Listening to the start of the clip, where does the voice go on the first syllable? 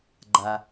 low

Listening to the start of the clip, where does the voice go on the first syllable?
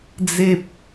high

